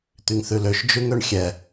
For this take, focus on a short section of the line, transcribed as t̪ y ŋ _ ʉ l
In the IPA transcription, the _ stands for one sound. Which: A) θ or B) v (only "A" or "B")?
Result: A